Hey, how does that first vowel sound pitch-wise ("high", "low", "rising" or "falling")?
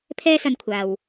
high